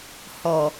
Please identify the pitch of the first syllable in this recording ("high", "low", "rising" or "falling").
low